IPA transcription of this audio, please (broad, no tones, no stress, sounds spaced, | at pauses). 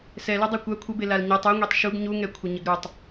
s ɛ l œ dˤ a kʷ a kʷʰ ə b e l a l ɲ a tˤ u ŋʷ e tˤ ʃ u ɡ ɲ u ŋ ɛ kʷʰ ə ɲ ə ɡ ɾ u tˤ